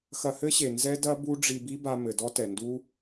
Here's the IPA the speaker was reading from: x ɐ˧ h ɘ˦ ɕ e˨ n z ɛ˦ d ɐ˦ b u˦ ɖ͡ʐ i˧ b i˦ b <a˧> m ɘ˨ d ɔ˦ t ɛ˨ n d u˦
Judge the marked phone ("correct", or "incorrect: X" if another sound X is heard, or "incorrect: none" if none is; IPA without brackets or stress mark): correct